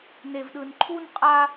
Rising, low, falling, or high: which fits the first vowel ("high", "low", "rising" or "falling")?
high